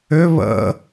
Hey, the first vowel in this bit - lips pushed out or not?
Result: yes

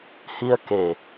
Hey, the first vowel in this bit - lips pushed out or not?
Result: no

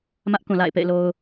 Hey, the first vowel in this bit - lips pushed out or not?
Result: no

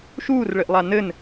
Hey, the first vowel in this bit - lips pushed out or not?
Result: yes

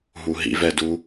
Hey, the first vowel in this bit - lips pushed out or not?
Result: yes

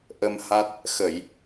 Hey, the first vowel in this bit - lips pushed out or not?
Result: no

